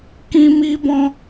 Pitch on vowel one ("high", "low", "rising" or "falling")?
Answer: high